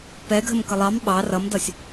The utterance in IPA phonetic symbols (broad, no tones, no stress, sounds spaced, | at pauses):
p ɛ ɡʱ ə m k ə lˠ ɑ m ɓ ɑ r ʌ m d ʌ sʲ